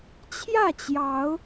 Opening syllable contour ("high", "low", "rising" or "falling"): falling